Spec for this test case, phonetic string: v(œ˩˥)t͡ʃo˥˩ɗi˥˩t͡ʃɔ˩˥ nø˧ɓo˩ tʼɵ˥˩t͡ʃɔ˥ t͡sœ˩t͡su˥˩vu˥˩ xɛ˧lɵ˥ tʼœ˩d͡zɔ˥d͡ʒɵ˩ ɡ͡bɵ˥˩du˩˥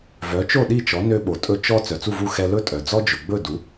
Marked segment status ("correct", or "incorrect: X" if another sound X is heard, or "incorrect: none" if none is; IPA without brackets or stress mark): correct